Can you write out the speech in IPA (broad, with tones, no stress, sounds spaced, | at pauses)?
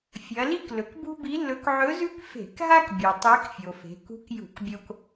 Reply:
fʲ ɐ˩˧ l i˥ k l ɵ˩ k b ṳ˥ b i˧˥ lː ɵ˧˥ k ʕ ɵ˧˥ z ʉ˥ k f e̤˧˩˧ k ɦ a˥ k bʲ u˩ tˤ e˧˥ k fʲ o˩ f e̤˩˧ k ṳ˧˥ k j ṳ˧˩˧ k bʲ o˧ k